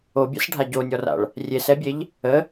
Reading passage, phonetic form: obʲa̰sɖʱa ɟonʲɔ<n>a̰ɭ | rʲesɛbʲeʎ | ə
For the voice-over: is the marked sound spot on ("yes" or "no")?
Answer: no